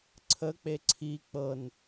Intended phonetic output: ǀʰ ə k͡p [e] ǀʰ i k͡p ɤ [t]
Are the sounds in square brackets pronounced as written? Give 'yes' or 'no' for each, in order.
yes, no

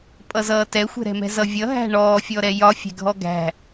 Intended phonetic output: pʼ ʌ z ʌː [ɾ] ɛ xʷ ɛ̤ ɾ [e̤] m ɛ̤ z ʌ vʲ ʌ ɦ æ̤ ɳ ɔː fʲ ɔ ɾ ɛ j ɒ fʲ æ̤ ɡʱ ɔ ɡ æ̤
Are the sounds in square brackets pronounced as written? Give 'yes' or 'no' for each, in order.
no, no

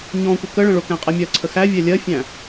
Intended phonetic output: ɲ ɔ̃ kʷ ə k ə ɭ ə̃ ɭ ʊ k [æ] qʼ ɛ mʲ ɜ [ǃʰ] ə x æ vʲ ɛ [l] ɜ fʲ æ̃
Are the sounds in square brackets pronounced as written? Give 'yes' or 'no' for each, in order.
no, no, no

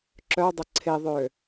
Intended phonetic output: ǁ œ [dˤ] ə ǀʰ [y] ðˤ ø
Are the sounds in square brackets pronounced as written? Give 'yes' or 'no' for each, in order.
yes, no

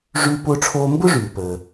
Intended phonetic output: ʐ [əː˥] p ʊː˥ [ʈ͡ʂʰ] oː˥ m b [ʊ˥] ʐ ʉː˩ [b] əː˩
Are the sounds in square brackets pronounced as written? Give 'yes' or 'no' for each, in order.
no, yes, yes, no

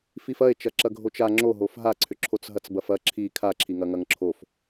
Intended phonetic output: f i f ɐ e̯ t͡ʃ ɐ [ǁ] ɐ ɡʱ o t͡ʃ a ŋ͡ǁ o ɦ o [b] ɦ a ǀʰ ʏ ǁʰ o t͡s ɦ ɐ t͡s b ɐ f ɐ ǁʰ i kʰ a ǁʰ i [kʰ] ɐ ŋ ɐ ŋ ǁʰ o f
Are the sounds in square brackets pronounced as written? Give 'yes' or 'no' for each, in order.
yes, no, no

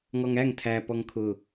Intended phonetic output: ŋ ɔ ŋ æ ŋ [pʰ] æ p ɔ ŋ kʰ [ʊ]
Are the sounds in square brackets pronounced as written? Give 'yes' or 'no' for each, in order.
no, yes

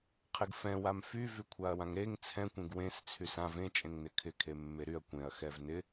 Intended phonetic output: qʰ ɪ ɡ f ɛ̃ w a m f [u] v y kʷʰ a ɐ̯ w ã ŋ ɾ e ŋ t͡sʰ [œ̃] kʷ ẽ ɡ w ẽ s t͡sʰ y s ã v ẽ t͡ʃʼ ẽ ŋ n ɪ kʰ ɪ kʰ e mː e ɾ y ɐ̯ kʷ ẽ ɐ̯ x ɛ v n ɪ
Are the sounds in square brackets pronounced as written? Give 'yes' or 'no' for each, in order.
no, no

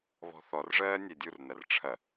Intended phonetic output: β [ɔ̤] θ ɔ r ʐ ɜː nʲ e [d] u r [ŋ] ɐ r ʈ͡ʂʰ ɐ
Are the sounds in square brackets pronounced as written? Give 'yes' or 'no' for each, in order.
yes, no, no

